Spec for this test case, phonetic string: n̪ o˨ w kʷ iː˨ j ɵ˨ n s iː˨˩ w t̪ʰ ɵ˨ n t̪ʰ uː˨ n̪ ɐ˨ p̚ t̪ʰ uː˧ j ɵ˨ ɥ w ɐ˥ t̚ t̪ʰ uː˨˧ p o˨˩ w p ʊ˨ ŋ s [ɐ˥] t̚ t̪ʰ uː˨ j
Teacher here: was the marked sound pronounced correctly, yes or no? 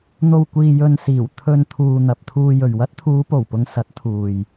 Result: no